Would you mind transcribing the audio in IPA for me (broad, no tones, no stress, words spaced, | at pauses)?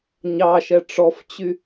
ɲɑʃɛ ʈ͡ʂɔft͡ɕy